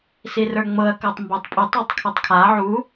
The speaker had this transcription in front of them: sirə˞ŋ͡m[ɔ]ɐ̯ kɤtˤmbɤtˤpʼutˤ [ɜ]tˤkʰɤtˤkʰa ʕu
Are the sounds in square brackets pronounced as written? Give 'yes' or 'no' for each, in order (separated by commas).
no, no